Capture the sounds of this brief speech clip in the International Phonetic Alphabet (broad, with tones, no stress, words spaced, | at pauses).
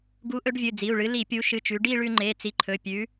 ɡu˨˥ ʔɵ˨˥ɖvʲɨ˩˧˩d͡zi˩˧˩u̯ɭɨ˨˥ li˧˩˧pʲu˨˥ ʃɨ˩˧˩t͡ʃʉ˩˧ ɖi˥˧ɭʉ˧ŋ͡ǃe˩˧˩ t͡si˨˥ǃʰɵ˩˧˩pʲʉ˨˥